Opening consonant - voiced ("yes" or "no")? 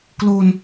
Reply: no